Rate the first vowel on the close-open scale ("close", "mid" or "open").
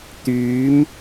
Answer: close